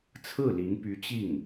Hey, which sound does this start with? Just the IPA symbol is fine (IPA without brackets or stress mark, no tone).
t͡sʰ